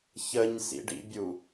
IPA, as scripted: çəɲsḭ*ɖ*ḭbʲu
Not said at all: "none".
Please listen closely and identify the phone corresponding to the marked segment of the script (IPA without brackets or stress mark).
ɖ